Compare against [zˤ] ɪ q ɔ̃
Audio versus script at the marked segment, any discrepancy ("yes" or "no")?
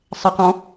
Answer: yes